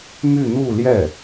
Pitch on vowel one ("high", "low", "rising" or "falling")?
falling